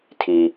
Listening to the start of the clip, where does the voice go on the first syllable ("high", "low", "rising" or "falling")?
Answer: low